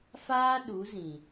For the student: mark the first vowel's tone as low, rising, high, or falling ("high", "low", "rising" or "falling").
high